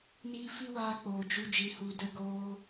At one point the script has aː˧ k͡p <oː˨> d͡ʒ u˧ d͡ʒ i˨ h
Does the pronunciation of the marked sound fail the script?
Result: no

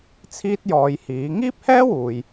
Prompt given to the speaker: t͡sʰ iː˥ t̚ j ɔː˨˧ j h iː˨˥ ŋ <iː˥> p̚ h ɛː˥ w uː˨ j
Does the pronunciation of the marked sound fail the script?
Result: no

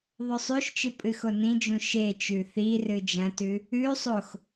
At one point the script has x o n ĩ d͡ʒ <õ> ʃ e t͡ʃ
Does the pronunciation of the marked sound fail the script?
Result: yes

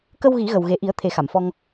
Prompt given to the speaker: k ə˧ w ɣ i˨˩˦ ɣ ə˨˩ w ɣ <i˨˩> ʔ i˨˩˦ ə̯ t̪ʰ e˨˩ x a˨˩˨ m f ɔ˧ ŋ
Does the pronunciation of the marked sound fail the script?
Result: yes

